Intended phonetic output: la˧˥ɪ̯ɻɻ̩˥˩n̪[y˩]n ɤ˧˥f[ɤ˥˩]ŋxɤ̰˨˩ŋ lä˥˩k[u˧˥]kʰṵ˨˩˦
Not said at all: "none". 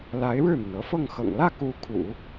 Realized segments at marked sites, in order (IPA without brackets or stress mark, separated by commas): y˩, ɤ˥˩, u˧˥